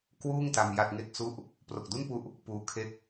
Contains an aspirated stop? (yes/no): yes